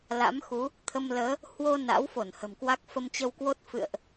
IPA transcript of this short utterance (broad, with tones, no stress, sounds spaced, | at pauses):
l a̰˧˥ m x u˨˦ | t̪ʰ ə˧ m l əː˨˦ | h w o˧ n a̰˧˥ w f o˧˩ n h ə̤˨˩ m k w a˦˥ k̚ f ə˧ m t͡ɕ ə˧ w k w o˦˥ t̚ f ɨ̰˧˨ ə̯ ʔ